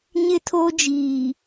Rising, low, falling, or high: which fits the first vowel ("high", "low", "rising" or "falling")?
high